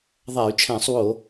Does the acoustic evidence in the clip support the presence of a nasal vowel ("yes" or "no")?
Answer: yes